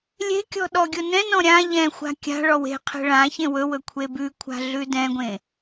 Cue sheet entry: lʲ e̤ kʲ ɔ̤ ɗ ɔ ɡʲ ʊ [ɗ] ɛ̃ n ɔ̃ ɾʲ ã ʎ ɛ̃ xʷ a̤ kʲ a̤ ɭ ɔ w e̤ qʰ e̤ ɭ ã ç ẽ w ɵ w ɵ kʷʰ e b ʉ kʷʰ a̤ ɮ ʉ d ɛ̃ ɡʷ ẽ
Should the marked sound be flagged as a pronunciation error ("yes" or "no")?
yes